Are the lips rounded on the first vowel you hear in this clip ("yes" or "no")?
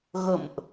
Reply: no